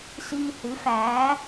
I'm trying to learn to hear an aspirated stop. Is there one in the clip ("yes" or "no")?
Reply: no